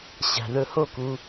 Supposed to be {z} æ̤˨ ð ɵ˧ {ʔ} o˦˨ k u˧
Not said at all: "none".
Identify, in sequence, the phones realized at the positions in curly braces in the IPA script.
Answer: ɕ, h

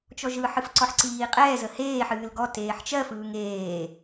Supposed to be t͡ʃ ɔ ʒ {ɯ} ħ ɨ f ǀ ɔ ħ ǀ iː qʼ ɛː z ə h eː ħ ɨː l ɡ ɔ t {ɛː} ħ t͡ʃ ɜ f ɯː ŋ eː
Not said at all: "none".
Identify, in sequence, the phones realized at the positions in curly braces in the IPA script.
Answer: ɯ, eː

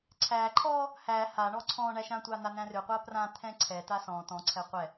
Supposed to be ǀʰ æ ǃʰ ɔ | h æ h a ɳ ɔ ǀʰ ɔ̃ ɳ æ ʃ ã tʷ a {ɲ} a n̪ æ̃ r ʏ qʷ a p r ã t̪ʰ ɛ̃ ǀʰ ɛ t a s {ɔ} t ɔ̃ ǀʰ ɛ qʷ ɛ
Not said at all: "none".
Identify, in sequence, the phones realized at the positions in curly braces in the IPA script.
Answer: n̪, ɔ̃

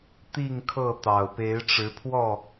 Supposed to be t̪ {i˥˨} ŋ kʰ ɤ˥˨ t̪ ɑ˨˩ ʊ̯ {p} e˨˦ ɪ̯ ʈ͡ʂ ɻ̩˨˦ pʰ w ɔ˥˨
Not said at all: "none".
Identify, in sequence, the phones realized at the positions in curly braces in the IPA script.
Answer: i˥˨, p

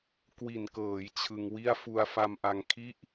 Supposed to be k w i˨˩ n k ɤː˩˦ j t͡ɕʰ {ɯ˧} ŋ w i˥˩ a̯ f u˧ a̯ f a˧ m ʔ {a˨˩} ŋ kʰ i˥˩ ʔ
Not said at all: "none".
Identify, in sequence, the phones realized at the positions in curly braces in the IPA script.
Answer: ɯ˧, a˧

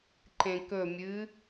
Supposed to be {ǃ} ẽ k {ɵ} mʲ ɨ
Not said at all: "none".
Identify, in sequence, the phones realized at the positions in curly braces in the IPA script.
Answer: ǃ, ɵ

